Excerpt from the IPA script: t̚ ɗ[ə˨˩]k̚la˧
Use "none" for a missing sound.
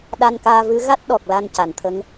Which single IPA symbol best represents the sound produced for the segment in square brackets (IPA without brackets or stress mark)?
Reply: ɔ˨˩